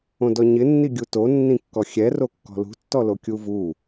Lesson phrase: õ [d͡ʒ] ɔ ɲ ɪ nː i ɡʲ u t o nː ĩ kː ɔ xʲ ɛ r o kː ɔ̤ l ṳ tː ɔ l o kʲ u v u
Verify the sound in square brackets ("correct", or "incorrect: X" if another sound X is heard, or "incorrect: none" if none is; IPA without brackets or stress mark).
incorrect: d